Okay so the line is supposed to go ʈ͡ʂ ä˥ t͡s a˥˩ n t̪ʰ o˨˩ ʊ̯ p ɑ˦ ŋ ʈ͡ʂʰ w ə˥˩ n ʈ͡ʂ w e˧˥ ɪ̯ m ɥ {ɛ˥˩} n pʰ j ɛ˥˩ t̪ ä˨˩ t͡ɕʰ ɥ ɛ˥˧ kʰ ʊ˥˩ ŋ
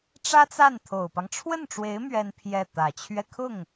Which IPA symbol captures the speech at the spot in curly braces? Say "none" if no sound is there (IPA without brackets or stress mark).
ɛ˥